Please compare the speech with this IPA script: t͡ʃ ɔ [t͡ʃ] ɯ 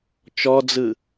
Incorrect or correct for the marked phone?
incorrect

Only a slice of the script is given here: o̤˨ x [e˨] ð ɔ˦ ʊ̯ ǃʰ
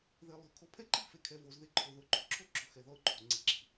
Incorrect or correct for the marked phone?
incorrect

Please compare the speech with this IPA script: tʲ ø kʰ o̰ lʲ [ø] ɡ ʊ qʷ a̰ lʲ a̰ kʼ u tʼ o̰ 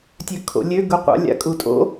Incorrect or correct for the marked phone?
correct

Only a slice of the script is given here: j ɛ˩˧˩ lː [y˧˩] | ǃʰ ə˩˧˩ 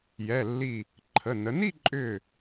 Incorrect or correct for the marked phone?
incorrect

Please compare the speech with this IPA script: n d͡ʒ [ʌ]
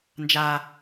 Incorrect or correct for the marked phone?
incorrect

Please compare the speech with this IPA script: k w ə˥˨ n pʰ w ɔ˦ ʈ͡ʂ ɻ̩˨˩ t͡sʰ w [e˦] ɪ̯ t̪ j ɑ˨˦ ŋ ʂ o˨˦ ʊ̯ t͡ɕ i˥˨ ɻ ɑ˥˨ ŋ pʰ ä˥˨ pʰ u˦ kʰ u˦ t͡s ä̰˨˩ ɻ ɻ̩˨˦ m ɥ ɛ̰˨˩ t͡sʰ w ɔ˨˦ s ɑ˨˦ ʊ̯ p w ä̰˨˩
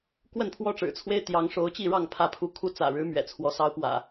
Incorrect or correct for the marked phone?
correct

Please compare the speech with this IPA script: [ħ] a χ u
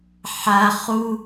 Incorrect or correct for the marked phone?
correct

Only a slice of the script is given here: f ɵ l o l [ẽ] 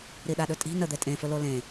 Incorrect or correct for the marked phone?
correct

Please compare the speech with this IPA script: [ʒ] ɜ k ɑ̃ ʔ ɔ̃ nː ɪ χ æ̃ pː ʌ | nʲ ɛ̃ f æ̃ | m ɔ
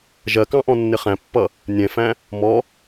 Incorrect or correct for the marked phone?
correct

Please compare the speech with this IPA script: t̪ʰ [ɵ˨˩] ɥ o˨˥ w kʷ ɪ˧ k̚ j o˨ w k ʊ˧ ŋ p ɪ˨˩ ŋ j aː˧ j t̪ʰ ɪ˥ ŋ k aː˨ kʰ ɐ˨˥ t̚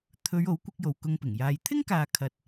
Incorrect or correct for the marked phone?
incorrect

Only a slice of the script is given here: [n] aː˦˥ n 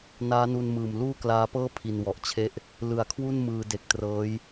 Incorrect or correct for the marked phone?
correct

